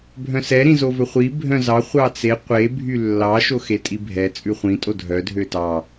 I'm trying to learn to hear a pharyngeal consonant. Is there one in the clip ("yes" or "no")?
no